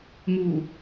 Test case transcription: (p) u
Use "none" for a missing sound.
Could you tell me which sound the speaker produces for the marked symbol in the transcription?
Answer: m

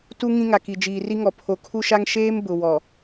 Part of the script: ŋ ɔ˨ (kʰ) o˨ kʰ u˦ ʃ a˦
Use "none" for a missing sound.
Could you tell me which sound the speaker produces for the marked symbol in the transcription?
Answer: pʰ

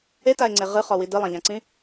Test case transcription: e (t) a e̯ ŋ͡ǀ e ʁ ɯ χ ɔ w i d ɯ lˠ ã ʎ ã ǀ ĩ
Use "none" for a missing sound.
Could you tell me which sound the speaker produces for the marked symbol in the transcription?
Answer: t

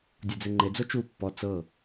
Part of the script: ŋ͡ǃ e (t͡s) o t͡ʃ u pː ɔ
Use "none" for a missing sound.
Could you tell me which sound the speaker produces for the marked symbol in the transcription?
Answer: d͡z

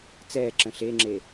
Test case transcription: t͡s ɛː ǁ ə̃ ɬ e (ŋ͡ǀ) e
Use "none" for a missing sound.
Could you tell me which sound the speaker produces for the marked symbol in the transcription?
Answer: ŋ͡ǁ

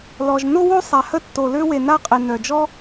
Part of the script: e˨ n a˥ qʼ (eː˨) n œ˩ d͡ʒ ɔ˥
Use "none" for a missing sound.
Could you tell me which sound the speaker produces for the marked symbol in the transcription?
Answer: e˨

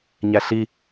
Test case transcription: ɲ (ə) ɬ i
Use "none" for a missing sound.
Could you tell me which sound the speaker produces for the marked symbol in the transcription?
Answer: æ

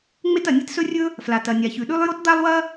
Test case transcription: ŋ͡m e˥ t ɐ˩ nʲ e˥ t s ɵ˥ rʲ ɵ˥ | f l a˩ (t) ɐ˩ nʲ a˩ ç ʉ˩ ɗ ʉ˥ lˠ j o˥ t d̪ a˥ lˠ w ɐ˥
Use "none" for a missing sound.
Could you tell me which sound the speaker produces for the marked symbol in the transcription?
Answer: t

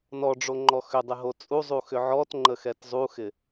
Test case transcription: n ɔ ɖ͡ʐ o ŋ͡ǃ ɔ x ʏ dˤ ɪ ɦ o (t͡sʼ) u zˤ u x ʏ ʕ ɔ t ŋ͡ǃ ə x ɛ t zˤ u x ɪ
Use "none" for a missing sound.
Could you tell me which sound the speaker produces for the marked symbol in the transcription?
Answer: t͡sʼ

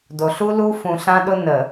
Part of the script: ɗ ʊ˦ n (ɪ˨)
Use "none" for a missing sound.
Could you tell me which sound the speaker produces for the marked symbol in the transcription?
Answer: ə˨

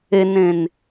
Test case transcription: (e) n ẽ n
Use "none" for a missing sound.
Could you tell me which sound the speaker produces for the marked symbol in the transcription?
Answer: e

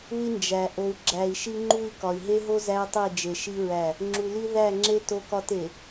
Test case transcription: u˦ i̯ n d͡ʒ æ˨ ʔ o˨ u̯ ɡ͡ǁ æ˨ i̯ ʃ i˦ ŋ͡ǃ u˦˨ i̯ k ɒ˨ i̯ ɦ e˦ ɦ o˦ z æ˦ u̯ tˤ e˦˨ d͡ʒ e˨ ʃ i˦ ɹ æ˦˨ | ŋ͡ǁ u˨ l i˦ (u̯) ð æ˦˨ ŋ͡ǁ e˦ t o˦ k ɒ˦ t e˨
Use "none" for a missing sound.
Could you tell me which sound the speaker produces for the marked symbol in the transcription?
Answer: none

